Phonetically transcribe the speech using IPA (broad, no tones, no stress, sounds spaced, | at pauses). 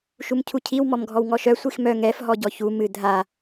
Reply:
ʃ u m cʰ u cʰ i w m ɔ m ɡʱ ɔ w ŋ ɔ ʃ œ sʷ i x m œ ŋ ɛ f ɦ ɔ ɟ ɔ ç u m ɨ dʱ a